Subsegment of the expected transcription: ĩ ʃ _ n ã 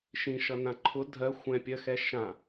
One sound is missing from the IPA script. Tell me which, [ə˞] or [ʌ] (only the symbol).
ʌ